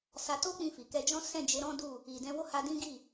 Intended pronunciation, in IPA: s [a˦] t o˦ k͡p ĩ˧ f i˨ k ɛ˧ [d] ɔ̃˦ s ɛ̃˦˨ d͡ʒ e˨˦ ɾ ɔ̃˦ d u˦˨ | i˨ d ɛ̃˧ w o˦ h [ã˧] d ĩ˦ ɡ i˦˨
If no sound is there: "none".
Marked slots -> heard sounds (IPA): a˧, d͡ʒ, a˧

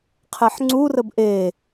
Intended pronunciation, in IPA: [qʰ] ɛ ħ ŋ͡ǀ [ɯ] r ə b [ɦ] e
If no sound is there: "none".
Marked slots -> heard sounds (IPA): qʰ, u, ʔ

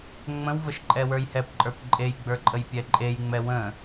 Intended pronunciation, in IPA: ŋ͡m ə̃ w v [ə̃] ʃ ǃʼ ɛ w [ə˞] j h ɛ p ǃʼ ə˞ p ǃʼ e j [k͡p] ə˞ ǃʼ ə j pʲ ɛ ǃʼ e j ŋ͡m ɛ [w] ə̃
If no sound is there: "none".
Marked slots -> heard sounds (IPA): ə, ə˞, ɡ͡b, w

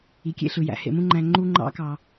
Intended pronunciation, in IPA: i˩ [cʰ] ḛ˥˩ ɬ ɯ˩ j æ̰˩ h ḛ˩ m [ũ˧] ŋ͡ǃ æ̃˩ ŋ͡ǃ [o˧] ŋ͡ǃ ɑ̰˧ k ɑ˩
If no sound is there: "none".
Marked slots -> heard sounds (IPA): kʲ, ũ˧, u˧

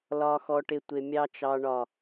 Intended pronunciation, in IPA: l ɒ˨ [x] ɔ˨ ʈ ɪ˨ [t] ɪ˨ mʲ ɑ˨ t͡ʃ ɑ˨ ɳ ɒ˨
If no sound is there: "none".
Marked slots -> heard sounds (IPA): x, tʷ

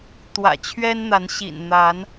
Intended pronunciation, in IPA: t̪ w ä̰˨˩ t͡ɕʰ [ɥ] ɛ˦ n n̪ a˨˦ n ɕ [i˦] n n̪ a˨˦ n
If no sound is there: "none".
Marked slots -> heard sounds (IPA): ɥ, ḭ˨˩

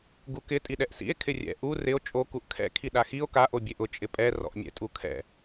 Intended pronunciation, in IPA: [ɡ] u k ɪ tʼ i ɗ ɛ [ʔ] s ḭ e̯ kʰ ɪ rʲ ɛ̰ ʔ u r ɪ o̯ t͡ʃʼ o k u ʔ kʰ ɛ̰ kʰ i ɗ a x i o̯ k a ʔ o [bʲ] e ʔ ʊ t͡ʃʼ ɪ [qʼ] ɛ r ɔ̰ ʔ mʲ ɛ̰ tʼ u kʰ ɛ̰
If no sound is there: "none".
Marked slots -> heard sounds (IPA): ɡ, ʔ, bʲ, pʼ

